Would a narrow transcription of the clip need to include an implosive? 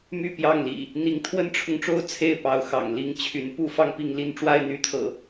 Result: no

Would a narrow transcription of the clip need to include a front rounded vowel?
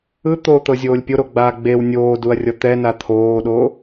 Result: no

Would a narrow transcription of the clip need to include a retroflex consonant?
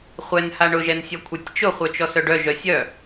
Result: yes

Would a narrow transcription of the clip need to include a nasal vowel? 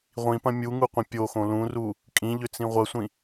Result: yes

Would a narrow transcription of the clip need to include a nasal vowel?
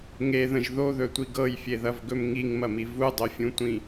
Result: yes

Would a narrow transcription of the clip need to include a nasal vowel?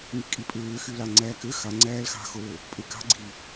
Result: no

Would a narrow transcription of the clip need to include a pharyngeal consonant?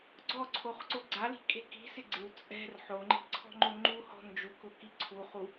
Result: yes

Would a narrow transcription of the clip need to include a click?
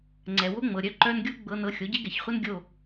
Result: yes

